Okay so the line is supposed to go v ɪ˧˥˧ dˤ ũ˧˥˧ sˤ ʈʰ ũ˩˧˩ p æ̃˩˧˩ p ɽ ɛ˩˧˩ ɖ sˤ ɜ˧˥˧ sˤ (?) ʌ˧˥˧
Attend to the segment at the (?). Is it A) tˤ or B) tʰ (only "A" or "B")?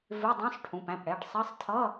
B